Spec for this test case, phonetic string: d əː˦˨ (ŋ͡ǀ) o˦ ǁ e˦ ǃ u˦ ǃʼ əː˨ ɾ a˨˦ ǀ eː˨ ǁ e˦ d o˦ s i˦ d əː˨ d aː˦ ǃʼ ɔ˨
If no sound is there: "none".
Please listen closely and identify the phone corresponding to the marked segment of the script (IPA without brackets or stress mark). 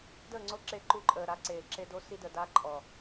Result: ŋ͡ǀ